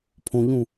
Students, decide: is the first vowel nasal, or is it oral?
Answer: nasal